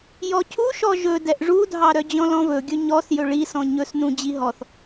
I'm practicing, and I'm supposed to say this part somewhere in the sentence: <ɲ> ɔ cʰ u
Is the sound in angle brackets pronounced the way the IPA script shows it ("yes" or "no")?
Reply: no